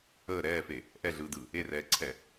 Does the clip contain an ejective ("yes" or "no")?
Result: no